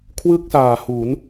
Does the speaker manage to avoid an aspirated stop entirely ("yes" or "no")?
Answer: no